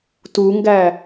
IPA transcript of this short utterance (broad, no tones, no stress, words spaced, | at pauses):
tuŋɡæ